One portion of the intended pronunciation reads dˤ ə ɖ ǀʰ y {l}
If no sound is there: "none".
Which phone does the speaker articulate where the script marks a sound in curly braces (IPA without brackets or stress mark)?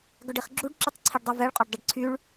ɭ